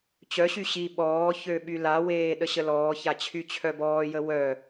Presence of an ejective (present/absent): absent